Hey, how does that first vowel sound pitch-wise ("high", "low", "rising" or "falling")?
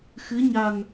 rising